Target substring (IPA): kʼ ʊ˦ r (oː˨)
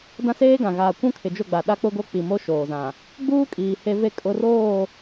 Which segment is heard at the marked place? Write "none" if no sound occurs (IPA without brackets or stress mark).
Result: oː˦˨